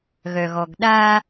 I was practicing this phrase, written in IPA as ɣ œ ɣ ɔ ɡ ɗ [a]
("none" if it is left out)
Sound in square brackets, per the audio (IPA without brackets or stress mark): a